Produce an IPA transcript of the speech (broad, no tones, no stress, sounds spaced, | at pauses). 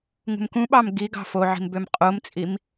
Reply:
ŋ ṳ m k ũ ɓ ɑ m ɡ i ɡ ɑ̤ f o ʕ i̤ m b ø m qʼ o m t͡sʼ i m